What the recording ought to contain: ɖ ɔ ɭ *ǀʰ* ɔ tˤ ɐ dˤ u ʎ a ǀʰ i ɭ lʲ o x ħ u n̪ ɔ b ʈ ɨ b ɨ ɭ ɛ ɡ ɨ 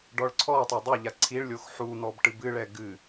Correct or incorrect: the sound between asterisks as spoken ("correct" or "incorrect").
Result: correct